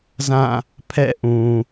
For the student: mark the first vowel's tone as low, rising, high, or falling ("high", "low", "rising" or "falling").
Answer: falling